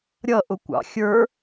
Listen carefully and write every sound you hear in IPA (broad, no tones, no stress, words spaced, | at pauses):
ɾʲʌʔʊkʷɑ̰ xʲə˞